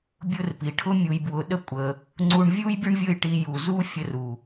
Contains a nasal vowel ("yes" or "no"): no